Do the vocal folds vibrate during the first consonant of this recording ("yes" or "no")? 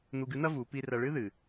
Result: yes